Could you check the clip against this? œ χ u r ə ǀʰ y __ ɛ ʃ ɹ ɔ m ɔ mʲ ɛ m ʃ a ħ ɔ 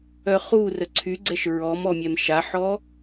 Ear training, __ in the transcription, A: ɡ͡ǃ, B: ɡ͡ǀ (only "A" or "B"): B